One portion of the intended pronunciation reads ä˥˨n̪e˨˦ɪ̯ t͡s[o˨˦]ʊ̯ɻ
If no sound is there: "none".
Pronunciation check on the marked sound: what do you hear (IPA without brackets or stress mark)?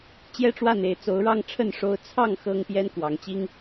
o˨˦